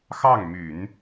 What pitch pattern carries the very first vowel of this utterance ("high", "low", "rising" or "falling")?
falling